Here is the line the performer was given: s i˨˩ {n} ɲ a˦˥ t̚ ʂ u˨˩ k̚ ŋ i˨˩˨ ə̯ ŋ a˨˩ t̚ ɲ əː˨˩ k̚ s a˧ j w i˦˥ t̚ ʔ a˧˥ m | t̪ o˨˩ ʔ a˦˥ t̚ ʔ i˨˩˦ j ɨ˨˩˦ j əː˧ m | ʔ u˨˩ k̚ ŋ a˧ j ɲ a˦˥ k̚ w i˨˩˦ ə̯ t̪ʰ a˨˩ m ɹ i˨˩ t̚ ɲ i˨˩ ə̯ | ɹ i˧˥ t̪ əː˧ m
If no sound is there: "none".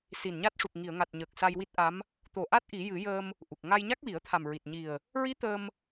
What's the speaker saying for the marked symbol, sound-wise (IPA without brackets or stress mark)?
n